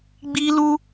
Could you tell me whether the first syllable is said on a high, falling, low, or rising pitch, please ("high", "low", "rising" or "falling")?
high